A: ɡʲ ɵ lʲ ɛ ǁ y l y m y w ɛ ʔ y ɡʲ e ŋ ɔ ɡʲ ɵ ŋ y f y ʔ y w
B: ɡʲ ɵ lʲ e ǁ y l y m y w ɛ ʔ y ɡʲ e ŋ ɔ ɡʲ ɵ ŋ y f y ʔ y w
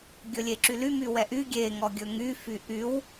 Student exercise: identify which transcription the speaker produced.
B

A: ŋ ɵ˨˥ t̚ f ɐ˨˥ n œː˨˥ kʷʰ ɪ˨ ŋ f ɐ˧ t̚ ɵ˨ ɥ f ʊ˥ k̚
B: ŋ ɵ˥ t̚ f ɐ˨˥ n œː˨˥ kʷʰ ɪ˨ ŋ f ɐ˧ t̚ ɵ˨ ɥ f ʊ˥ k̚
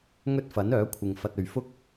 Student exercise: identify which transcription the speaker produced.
B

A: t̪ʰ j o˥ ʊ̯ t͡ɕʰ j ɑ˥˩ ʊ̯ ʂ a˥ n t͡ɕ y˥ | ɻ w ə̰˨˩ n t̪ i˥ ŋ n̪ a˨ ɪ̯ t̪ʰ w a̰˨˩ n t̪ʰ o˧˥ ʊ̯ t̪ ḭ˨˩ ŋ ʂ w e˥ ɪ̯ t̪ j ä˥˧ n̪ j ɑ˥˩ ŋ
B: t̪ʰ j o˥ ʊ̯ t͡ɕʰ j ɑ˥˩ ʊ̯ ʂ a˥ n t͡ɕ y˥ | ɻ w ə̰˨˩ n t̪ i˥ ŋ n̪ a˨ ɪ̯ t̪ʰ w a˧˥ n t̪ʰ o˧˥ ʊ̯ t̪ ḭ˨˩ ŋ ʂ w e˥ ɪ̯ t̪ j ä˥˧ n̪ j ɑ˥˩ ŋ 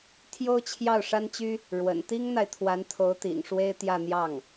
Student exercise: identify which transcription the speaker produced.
B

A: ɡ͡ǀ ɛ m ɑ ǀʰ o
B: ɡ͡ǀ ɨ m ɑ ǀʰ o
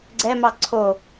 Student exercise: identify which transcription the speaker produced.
A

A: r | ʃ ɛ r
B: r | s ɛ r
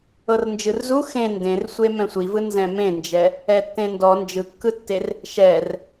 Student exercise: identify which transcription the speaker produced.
A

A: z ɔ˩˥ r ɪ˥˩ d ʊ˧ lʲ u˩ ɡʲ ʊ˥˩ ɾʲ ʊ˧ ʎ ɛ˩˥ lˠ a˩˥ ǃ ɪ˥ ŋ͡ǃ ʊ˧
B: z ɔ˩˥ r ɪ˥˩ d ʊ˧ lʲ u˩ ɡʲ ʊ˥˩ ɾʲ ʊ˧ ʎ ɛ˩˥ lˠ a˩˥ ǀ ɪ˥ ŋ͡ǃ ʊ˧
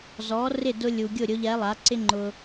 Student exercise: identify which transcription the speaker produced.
B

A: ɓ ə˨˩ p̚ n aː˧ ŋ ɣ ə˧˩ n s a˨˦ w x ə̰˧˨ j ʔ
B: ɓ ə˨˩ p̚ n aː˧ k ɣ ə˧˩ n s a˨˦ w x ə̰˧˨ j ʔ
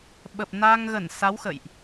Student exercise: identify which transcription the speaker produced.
A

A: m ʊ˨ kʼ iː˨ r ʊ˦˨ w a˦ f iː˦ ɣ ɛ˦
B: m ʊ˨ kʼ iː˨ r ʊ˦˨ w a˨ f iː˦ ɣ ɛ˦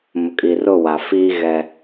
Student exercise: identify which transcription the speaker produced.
B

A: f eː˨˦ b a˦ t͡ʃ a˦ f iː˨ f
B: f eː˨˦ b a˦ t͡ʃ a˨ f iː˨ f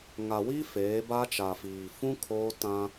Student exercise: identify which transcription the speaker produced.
B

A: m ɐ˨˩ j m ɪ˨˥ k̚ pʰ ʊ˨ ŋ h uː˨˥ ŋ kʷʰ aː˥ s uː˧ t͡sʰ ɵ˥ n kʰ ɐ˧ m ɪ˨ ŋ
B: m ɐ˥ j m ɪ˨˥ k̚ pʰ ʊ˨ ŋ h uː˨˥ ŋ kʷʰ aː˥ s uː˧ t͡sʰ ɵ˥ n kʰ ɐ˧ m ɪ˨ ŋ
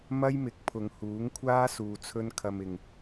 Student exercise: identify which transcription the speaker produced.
B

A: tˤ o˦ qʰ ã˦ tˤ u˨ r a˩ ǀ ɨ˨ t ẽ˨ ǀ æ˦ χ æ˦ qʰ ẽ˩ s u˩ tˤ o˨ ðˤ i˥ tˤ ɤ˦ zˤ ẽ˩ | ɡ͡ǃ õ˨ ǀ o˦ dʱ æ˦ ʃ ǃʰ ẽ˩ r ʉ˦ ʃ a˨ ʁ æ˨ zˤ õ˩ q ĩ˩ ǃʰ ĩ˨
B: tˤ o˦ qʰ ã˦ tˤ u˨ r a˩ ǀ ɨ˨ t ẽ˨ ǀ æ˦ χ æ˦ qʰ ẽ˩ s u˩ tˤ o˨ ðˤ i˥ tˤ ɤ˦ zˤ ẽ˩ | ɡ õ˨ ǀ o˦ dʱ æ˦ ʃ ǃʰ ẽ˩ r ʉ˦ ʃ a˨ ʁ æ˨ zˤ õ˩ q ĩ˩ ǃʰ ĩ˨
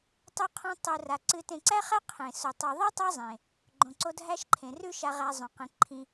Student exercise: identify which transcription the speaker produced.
A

